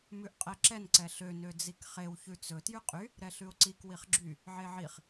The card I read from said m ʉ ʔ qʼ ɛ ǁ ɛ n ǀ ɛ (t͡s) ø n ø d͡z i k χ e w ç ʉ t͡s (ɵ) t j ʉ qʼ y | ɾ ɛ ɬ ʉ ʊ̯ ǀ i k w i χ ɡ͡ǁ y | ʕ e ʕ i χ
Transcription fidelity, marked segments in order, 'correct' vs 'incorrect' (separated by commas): incorrect, correct